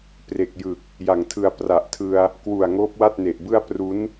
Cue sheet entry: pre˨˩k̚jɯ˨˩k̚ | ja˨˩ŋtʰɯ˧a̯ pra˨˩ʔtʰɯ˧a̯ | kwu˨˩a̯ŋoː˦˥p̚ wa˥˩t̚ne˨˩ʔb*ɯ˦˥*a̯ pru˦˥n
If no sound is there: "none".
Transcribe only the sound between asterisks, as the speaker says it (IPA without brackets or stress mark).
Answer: ɯ˥˩